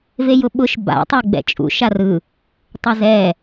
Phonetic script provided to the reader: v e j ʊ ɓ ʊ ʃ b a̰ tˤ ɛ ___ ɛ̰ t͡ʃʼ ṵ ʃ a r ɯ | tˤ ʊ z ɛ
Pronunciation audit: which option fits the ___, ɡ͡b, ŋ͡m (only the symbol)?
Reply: ɡ͡b